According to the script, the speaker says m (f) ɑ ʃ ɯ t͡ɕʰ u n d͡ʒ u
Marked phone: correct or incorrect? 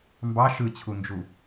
incorrect